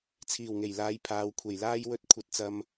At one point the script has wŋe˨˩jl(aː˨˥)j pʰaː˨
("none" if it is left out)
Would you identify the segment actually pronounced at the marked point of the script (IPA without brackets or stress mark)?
aː˨˧